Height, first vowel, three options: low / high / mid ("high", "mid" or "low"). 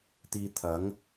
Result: high